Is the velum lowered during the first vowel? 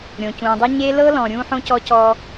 yes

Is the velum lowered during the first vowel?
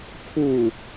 no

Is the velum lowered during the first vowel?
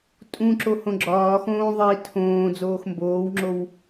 yes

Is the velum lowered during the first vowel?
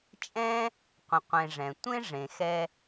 yes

